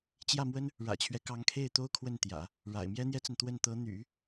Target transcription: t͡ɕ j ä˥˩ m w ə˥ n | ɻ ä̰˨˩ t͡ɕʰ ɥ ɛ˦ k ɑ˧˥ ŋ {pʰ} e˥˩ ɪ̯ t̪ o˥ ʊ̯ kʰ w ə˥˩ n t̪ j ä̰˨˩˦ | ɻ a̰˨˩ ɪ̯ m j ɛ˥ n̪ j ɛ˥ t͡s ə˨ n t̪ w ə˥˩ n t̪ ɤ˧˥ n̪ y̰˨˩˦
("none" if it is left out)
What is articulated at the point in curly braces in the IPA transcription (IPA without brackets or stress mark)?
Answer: kʰ